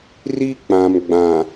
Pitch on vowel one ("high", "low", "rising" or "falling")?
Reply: high